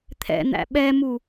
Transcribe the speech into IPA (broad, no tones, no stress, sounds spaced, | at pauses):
t̪ʰ ɛ̰ n̪ æ̰ ɓ ɛ m u